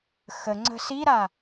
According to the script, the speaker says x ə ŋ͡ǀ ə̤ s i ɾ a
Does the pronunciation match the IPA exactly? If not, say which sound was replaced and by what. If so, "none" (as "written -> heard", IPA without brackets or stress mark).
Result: none